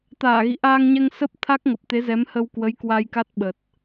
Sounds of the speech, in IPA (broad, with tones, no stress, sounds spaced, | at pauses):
t̪ aː˧˩ ɣ ḭ˧˨ ʔ aː˧ ŋ ɲ ɛ˧ ŋ s ə˦˥ p̚ t̪ʰ a˦˥ k̚ ŋ ə˨˩ p̚ t̪ e˨˦ z ɛ˨˦ m h ə˧ w k w ə˨˦ j k w a˧ j k a˦˥ t̚ ɓ ə˨˩ t̚